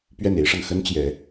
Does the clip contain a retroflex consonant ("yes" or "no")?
yes